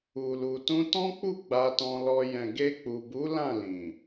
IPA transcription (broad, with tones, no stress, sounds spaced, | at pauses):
u˨ l u˨ t ũ˧ t ɔ̃˦ k͡p u˦˨ ɡ͡b a˧ t ɔ̃˧ l ɔ˧ j ɛ̃˨ ɡ e˧ k͡p u˨ b u˨˦ l ã˦˨ l ĩ˨